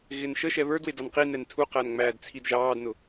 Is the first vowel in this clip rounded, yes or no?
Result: no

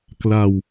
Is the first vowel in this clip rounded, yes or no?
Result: no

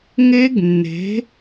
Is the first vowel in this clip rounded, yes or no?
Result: no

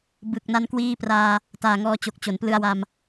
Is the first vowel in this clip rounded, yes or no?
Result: no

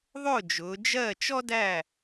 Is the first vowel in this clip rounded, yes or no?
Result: yes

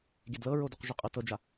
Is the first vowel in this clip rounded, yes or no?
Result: no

